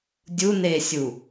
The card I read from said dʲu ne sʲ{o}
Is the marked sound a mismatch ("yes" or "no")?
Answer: yes